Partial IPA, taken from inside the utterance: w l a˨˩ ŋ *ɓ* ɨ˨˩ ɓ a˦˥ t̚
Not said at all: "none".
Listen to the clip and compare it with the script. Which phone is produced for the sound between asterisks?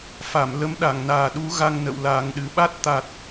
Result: ɗ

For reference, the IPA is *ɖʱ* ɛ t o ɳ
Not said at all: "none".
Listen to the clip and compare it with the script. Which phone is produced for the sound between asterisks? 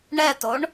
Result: ɳ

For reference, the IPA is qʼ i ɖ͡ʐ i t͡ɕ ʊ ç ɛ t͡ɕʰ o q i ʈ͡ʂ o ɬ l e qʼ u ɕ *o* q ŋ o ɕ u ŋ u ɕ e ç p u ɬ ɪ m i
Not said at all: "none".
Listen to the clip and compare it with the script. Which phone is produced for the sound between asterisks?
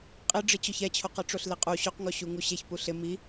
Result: o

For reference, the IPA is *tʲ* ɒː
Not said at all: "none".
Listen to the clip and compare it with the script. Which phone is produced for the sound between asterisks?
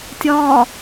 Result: tʲ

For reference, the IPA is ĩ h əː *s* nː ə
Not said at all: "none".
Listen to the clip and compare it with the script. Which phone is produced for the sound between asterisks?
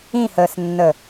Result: s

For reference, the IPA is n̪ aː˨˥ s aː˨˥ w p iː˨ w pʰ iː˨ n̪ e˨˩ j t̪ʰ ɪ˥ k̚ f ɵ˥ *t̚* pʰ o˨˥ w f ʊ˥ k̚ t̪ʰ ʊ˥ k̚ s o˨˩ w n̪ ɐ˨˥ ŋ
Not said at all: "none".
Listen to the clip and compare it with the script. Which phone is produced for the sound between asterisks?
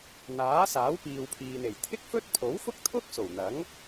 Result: t̚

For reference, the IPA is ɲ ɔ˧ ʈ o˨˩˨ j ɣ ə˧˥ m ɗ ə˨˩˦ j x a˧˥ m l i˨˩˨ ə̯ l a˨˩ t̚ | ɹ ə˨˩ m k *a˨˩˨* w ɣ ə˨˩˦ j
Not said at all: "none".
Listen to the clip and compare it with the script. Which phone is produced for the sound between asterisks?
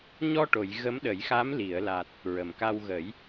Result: a˧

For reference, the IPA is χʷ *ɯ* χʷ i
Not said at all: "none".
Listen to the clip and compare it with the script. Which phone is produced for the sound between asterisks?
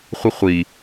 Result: ɯ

